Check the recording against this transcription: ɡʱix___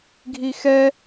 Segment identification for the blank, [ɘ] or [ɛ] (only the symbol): ɛ